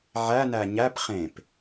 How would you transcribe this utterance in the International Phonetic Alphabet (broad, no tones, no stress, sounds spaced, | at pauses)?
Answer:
ʕ æ n æ ɲ æ p χ ẽ p